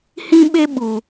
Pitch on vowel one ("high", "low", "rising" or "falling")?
high